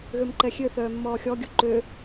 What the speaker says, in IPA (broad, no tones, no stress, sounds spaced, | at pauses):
ɣ ø m ǃ ɛ xʲ ø θ œː mː ɔː xʲ ɔ ɡʲ u ǃ ø